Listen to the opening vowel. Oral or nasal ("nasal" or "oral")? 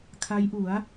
oral